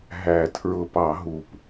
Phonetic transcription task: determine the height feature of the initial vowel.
low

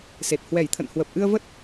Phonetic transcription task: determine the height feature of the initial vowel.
mid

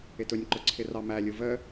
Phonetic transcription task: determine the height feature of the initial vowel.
high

